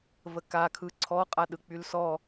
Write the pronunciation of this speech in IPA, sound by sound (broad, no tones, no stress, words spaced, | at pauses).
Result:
vəkakʰɯ ǀʰɔqʼa ɗɯk͡pylsɔ